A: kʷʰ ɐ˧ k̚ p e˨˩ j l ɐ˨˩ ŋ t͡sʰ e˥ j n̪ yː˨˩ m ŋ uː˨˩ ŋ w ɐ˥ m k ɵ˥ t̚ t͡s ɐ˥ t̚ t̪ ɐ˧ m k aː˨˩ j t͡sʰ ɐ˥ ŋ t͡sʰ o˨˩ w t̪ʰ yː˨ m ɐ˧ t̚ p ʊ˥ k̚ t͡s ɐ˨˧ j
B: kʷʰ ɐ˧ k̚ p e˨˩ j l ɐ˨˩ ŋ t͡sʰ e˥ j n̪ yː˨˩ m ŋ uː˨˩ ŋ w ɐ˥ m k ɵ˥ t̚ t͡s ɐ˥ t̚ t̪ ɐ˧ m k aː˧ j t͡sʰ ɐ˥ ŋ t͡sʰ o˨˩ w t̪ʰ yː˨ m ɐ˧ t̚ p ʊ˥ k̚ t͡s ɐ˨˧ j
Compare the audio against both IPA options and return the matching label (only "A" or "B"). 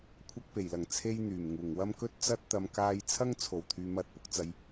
B